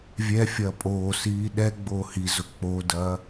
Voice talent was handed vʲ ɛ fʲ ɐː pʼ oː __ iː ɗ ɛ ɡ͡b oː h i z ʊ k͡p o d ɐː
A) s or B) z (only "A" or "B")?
A